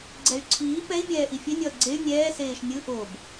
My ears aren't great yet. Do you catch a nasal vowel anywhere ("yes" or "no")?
no